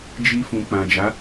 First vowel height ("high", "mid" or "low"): high